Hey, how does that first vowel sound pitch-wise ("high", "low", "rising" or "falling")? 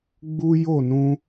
high